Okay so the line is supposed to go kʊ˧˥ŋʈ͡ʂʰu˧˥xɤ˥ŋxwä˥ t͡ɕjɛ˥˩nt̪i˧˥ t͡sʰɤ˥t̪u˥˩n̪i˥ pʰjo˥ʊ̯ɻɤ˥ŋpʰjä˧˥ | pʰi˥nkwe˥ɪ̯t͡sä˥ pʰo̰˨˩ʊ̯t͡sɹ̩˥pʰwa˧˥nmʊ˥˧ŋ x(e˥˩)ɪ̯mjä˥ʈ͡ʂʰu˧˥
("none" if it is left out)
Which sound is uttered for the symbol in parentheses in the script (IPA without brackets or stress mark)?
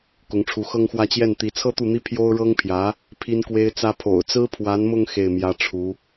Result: e˥˩